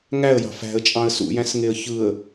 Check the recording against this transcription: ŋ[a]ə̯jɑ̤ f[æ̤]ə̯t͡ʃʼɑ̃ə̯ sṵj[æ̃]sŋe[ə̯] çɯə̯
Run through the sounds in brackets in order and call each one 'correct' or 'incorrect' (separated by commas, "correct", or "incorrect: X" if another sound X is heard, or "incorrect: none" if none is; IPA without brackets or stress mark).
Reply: incorrect: æ, correct, correct, correct